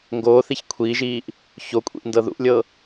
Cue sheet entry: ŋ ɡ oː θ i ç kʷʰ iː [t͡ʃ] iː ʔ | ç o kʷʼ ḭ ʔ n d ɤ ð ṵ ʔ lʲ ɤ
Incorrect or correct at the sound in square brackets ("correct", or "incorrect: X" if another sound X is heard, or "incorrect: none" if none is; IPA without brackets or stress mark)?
incorrect: ʒ